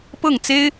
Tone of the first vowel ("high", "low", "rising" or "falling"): falling